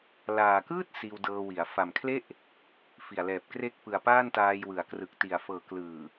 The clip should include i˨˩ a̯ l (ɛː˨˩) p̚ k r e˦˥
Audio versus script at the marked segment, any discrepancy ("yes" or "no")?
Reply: no